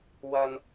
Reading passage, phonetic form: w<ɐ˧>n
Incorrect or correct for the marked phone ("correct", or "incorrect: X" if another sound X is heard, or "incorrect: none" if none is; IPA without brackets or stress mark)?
correct